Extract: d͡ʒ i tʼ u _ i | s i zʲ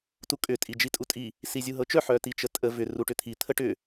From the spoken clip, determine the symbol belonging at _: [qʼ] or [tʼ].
tʼ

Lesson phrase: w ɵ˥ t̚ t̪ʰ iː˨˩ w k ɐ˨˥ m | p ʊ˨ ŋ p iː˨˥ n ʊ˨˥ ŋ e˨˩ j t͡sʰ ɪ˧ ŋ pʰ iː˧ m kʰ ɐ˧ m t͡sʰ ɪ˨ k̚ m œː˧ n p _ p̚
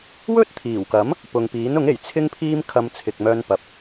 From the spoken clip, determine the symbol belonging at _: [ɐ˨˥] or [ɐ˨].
ɐ˨˥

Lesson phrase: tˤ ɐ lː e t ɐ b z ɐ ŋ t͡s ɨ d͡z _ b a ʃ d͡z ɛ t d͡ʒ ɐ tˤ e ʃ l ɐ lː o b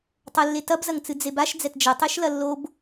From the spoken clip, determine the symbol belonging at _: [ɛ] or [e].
e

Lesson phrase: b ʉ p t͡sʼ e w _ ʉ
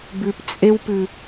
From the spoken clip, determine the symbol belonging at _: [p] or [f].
p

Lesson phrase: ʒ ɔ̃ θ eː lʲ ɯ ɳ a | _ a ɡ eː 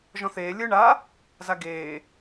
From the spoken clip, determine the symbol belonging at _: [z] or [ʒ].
z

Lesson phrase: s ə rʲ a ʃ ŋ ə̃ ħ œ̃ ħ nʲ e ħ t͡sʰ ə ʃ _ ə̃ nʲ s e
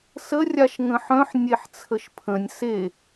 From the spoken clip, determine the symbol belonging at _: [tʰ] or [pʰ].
pʰ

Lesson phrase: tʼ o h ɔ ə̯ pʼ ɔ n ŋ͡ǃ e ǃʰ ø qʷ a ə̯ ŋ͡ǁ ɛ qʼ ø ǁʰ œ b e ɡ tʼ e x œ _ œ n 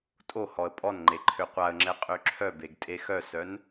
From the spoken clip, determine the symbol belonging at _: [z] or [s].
s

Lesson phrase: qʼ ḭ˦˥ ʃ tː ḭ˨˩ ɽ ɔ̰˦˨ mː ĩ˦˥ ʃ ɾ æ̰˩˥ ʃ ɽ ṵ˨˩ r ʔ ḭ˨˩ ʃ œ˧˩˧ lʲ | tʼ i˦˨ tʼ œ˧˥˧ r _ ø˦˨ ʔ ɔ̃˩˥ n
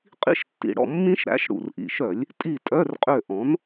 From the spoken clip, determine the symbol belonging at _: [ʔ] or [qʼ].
qʼ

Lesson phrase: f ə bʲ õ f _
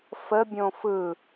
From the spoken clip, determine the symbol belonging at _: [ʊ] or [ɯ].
ɯ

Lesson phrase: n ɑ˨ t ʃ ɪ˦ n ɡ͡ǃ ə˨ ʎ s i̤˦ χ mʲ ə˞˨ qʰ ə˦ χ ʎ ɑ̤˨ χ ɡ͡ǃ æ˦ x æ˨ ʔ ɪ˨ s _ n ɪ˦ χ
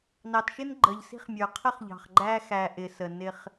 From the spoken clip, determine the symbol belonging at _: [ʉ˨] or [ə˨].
ə˨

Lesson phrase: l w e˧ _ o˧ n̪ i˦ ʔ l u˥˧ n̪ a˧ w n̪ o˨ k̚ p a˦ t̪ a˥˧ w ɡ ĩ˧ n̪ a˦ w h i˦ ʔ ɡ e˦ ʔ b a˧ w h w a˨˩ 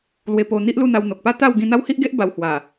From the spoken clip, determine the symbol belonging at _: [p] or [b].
p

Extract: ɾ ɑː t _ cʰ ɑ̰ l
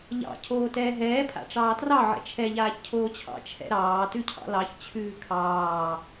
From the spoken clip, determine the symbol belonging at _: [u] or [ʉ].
ʉ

